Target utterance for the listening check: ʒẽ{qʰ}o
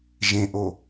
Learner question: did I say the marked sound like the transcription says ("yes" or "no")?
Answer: no